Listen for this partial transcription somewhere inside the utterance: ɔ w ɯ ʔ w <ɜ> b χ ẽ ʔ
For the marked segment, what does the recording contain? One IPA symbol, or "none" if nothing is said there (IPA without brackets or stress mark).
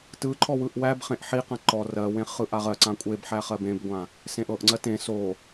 æ